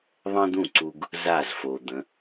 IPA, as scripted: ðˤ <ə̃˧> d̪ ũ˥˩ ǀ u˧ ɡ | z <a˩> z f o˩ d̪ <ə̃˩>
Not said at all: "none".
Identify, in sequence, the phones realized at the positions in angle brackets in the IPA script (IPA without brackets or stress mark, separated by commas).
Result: ə̃˥, a˥˩, ə̃˩˥